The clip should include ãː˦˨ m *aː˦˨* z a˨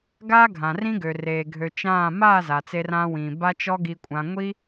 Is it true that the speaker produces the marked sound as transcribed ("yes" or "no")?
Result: yes